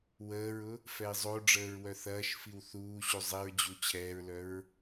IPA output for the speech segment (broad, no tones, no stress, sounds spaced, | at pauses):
w əː ɹ ʊ | f ɛ i̯ zˤ o ɖ͡ʐ əː ɹ w œ θ ɐː ʃ f i w θ uː ɕ u zˤ i ɹ d͡ʑ u t͡ɕʰ ɛː ɹ l œ ɹ